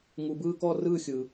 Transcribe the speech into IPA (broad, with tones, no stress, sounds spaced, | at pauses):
ŋ u˧ b ɯː˥˧ k ɔ˥˧ r ɯː˥˧ xʲ ɯː˧